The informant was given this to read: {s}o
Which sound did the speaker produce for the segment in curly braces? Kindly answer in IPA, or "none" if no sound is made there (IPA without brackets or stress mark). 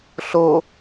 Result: ɬ